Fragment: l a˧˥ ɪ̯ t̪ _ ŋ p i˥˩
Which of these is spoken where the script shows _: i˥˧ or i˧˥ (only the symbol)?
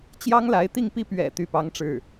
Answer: i˥˧